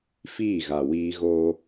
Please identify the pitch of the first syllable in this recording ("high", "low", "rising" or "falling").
falling